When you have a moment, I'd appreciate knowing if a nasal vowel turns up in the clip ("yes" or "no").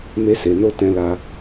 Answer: yes